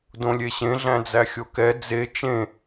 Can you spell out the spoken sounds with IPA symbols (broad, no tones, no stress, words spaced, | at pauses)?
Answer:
dõlʲeɕẽ ɮæ̃d͡zæxʲokɛ d͡ze t͡ʃẽ